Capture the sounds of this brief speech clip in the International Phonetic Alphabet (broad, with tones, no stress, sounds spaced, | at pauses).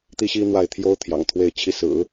t̪ i˥ ɕ i˥ n̪ w a˥˩ ɪ̯ t̪ʰ j o˥ ʊ̯ t̪ʰ j ɑ̰˨˩ ŋ t̪ʰ w e˥˧ ɪ̯ t͡ɕʰ i˥˩ s ɹ̩˨˩˦